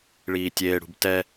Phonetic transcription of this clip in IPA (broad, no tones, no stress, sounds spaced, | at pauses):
ɭ iː tʲ eː ɽ ṳ b t ɛ